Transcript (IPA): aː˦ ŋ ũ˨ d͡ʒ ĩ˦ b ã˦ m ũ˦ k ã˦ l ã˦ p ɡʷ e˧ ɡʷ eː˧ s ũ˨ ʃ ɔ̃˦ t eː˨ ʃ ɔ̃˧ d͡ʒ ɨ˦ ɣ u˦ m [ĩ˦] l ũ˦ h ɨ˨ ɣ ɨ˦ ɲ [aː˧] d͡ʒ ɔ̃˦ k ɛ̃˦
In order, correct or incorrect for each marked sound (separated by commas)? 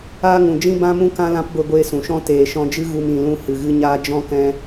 incorrect, incorrect